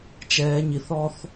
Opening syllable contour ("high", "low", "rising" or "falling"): high